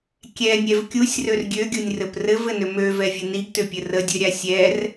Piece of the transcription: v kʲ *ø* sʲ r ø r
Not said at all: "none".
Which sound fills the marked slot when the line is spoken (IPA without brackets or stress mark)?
u